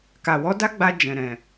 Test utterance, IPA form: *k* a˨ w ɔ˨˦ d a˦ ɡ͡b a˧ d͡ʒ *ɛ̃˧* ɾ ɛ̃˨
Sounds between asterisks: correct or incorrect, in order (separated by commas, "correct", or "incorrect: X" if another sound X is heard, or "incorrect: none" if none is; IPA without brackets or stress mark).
correct, incorrect: ɛ̃˨